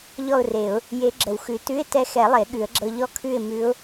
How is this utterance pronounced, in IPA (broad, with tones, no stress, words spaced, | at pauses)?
ʎɔ˥˨ʊ̯re˨˩˦ʊ̯ | je˧˥ɡ͡ǁə˨˩˦wxʉ˨˩˦ tʉ˧˥˧ɪ̯tɛ˧˥xɛ˨˩˦ lˠe˨˩˦ɠʉ˨˩˦ə̯ɡ͡ǁɤ˧ ʎɔ˥˨ kʰʉ˥˨ɪ̯mʉ˧˥ʊ̯